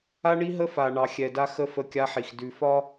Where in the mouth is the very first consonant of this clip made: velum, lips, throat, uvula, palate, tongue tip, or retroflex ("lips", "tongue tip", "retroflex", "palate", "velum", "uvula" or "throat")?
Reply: retroflex